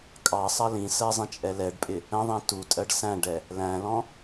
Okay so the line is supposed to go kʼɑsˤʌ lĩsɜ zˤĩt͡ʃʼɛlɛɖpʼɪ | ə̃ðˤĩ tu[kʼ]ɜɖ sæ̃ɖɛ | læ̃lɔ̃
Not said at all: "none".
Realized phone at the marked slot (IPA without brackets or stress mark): tʼ